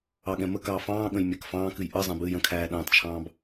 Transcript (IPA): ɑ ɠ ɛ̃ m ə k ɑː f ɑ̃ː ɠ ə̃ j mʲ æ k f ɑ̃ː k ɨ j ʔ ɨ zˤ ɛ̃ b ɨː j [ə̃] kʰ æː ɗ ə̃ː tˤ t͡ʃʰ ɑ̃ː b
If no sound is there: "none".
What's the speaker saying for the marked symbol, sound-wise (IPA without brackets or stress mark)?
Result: ə̃